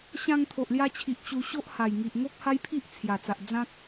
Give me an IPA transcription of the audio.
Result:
ɕ ã˧ ŋ t̪ʰ o˨ ʔ l j a˧ t͡ɕʰ i˨ ʔ t͡ɕ u˧ ɕ o˦ ʔ h a˨˩ j ŋ i˨ ʔ ŋ o˦ k̚ h a˦ j pʰ i˦ ʔ t͡sʰ j a˨˩ t͡s a˨ ʔ d͡z ã˦ k̚

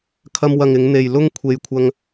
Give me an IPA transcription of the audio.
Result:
kʰ ɐ˧ m w ɐ˨ ŋ ɪ˨˧ ŋ n̪ e˨ j l ʊ˥ ŋ kʷʰ e˨ j kʷʰ ɐ˧ ŋ

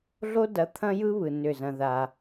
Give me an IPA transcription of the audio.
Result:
ɮ o˦ d ɐ˨˦ t̪ʰ ɐ̃˦ j ɯ˦ β ɯ˨ n ʏ˦˨ z ɐ̃˦ ð a˦

